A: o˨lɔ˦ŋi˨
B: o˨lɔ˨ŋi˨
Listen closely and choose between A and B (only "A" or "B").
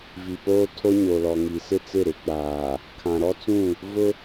B